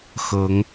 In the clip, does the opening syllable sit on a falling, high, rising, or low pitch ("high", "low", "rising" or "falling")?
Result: rising